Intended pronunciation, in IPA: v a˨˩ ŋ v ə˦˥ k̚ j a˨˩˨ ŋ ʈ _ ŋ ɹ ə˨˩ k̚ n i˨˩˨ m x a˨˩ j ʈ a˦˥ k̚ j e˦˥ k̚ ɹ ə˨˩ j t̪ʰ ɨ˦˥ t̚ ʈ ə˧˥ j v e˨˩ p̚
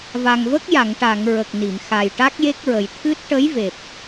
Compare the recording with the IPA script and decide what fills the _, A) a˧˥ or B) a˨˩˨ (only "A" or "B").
B